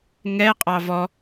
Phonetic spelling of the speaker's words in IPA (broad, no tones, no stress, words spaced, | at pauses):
ŋɛ qʼɑvɔ